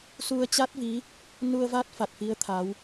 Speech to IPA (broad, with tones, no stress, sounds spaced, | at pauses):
s u˧ ə̯ t͡ɕ a˦˥ t̚ v i˨˦ | n u˧ ə̯ v a˦˥ t̚ f a˨˩ t̚ f i˨˦ ə̯ t̪ʰ a˨˦ w